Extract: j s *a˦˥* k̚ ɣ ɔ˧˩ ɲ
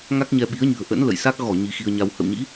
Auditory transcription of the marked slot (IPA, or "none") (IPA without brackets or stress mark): a˦˥